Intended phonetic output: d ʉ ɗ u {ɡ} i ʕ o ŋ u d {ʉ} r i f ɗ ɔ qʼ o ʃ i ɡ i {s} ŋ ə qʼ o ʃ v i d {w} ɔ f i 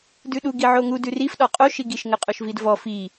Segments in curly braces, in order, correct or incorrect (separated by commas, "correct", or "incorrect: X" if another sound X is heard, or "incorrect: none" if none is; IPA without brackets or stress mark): correct, correct, incorrect: ʃ, incorrect: v